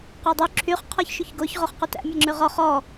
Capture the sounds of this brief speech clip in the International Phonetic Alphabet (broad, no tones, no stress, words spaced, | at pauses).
qodˤy ǁʰyχ qʰɔçʃyçɡoç ʁoχqutæ̰ mʲæŋ͡ǁʉʁɔ χɔ